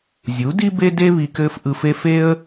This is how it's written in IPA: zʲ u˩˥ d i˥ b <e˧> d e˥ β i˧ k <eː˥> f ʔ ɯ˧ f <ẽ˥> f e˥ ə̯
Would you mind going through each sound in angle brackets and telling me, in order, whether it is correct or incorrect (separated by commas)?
incorrect, incorrect, incorrect